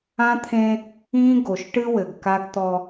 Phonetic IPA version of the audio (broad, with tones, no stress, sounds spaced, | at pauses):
ã˦ t̪ʰ ẽ˦ | ĩ˦ ɡ o˨ ʃ ʈ ɨ˦ w ɘ˨ ɡ k a˦ ɡ t̪ ɔ˦